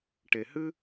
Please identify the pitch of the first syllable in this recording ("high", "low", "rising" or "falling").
low